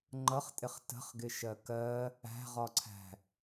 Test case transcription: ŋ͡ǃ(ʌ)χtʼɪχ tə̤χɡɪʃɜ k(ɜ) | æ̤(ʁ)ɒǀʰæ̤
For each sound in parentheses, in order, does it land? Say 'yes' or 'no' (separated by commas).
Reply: yes, yes, yes